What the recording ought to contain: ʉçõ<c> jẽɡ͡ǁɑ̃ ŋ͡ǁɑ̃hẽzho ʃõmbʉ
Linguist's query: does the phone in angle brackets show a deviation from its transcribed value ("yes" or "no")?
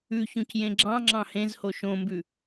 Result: no